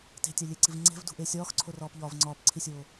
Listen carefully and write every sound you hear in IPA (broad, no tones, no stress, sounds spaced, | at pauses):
t e̤ tʲ æ lʲ e ǀ i v ŋ͡ǀ e̤ v d ṳ ʔ e sʲ ɒː x ǀʰ o r ɒː p ʎ ɒː v ŋ͡ǀ ɒː p ǀʰ i sʲ oː